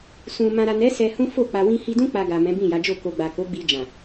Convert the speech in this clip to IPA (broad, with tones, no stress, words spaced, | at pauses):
sũ˨ mã˨ɾa˨nɛ˨˦ sɛ˧hũ˦fo˦˨ k͡pa˨wĩ˧hi˧dũ˦ k͡pa˧ɡa˨ mɛ̃˨˦bĩ˦˨ja˨˦d͡ʒo˦˨ ko˨ ɡ͡ba˨ko˨˦ɡ͡bi˧d͡ʒã˨